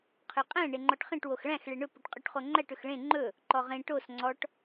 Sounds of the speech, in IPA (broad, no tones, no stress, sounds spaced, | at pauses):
qʰ ø qʼ æ̃ ɳ e ŋ͡ǃ ɔ ʈ χ ẽ ʈ w o x ɭ æ̃ x ɭ e ɳ ɵ p ɵ ʈ qʼ y ʈ χ o ŋ͡ǃ æ ʈ ɵ x ɭ ẽ ŋ͡ǃ ɵ | ǃ ɔ ʁ ẽ ʈ o s ŋ͡ǀ ɔ ʈ